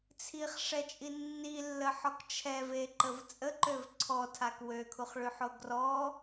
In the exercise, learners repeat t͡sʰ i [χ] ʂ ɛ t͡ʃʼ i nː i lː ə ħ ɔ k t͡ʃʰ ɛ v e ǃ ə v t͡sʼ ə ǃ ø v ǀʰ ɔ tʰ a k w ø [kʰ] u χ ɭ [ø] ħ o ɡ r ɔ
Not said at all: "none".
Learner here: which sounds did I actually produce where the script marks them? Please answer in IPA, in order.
χ, kʰ, y

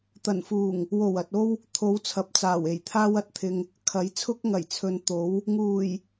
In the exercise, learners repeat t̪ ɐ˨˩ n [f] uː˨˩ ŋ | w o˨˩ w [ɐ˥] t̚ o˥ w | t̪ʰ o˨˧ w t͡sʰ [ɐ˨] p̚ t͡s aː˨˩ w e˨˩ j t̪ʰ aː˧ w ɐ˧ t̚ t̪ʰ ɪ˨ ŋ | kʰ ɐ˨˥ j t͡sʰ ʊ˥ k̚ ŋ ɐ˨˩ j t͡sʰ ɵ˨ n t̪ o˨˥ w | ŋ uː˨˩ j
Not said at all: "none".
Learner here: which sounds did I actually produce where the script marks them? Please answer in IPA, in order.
f, ɐ˨, ɐ˨

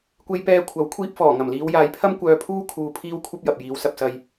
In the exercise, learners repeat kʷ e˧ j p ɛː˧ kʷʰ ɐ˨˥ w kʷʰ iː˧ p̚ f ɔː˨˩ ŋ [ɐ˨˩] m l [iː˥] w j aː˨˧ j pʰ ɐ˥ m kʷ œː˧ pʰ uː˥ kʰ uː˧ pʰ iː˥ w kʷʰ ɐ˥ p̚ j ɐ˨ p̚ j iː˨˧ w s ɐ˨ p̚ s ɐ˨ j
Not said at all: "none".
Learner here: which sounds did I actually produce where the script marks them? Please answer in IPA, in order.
ɐ˨˩, iː˨˧

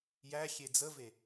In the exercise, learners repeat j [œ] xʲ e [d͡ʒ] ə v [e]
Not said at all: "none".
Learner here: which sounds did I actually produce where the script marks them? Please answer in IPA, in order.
æ, d͡z, e

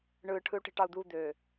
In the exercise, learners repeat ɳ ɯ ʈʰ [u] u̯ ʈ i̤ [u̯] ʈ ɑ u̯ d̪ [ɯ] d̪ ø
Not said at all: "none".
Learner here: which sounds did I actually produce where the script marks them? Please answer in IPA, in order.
ɯ, none, u

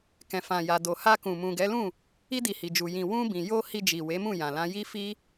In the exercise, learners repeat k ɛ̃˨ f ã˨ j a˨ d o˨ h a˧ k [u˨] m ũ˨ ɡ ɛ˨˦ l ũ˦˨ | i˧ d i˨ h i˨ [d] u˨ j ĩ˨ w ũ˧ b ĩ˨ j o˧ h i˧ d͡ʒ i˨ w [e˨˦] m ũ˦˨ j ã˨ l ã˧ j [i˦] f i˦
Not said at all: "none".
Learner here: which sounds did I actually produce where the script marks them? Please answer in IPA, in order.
ũ˨, d͡ʒ, e˨˦, i˦

